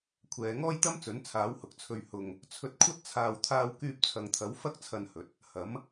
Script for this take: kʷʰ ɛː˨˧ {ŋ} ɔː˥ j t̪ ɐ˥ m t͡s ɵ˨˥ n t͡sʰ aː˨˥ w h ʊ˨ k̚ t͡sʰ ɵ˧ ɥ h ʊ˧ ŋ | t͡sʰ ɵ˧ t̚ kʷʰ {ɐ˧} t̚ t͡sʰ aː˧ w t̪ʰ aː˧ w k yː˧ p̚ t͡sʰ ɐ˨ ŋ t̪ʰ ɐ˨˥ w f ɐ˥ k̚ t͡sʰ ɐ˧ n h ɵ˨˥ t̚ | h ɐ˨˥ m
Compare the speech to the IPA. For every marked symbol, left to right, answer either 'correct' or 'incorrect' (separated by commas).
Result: correct, incorrect